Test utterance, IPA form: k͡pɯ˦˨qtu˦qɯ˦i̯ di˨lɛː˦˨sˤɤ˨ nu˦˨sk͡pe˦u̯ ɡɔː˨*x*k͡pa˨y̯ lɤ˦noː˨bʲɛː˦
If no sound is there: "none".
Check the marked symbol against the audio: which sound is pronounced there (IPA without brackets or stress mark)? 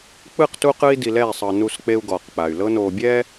q